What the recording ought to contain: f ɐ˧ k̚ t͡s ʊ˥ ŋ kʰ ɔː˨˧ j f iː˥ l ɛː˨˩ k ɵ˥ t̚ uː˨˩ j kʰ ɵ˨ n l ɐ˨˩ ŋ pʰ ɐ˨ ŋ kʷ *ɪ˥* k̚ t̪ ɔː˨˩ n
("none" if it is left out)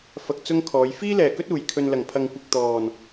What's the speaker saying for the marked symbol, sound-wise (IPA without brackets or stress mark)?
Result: ɪ˨